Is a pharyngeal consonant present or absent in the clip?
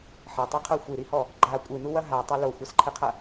present